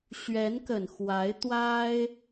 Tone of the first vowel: rising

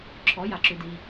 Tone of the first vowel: rising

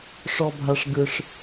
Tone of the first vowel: high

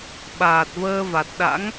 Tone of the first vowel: low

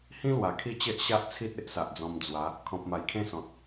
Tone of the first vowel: high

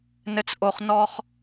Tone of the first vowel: high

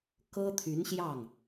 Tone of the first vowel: high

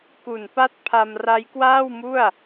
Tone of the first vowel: low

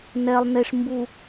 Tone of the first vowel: low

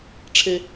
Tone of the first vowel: high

